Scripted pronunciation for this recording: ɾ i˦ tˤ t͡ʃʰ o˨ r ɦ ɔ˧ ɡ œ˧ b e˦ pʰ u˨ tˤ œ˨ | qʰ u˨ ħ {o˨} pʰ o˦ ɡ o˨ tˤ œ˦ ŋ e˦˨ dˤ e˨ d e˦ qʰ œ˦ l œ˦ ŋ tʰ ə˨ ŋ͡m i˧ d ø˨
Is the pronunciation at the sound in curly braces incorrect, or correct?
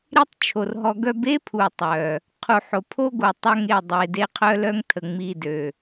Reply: correct